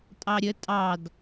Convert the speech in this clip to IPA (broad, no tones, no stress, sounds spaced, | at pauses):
tʼ ɑ ɾʲ ə tʼ ɑ d